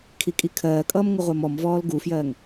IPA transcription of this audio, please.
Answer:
kʰ i kʼ i kʰ ɜː kʼ ʌː m ŋ ə ʁʷ ɜ m ɔ m v ɔː l ɡ u f j ɜː ŋ

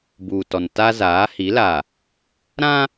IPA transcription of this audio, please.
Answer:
b uː˨ t ɔ˨ n t a˦ z aː˨˦ h i˨˦ l a˨ | ɾ ã˦

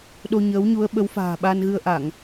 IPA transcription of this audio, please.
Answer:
ɗ o˧ ɲ əː˨˦ w ɲ u˨˦ ə̯ ɓ ə˨˦ w f a̤ː˨˩ ɓ a˧ n ɣ ɨ˧ ə̯ ʔ a˧˩˨ ŋ

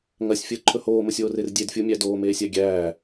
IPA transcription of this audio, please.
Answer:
ŋ ɐ sʲ fʲ əː ǃʰ ɵ h oː m ə sʲ oː r e r dʲ e d fʲ u mʲ æ d oː m eː sʲ æ ɡʲ æː

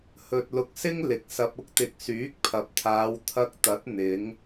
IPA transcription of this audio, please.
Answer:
h ɵ˧ t̚ l ʊ˧ k̚ s ɪ˥ ŋ l ɪ˨˥ k̚ s ɐ˧ p̚ ʊ˥ k̚ t̪ ɪ˧ k̚ s yː˨˥ k̚ pʰ ɐ˨ p̚ t̪ʰ aː˨˧ w t̪ʰ ɐ˧ k̚ t̪ ɐ˨˥ t̚ n̪ ɪ˨˧ ŋ

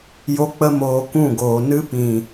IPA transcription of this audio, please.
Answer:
j o˦ k͡p ə˦ m oː˧ k ũ˦˨ ɡ oː˨ n ɨ˧ p ĩ˨

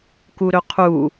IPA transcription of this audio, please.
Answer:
k u ɾ ɵ qʰ u

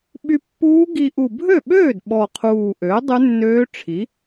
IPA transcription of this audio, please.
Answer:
ɓ y˧ pː uː˦˥ ɡ i˧ ʔ u˨˩ bʱ ø˥˩ ɓ øː˥˩ d ɓ ɔ˨˩ qʰ uː˨˩ ʔ øː˩˥ dˤ ʉ˦˥ nː øː˦˥ ʈ͡ʂʰ i˩˥

